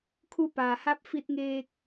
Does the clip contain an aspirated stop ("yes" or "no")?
yes